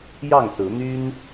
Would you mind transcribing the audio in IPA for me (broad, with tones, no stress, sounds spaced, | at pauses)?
j ɑ˥˨ ŋ s ɹ̩˨˦ n̪ y˦ n